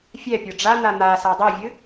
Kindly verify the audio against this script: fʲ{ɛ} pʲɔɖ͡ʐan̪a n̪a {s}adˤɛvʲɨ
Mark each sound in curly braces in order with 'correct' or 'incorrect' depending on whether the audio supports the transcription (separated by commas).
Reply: correct, correct